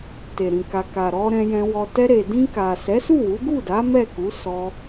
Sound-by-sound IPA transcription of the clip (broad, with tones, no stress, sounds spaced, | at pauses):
t e˨ ɾ ĩ˨ k a˨ k a˨ ɾ ɔ˧ ɾ ɛ̃˧ j ɛ̃˧ w ɔ˧ t ɛ˧ ɾ e˨ d ĩ˧ k a˨ s ɛ˨˦ s u˦˨ w u˨˦ ɡ u˦˨ d a˨˦ m ɛ˦˨ k u˨˦ s ɔ˧